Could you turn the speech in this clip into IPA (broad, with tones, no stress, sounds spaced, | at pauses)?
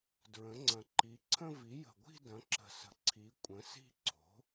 d ɹ ə̃˩˥ ŋ͡ǀ ɐ̃˨˩ ǃ i˩˥ ǀʰ ə̃˥˧ v i˩˥ j ə̤˨˩ ɡʷ i̤˥˧ d ɐ̃˩˥ ǁ ə̤˨˩ s ə̤˩˥ ǀʰ i˩˥ kʷʼ ə̃˩˥ s i̤˥˧ ǀʰ o̤˩˥